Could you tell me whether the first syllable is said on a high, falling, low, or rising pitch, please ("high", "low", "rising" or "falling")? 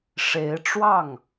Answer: rising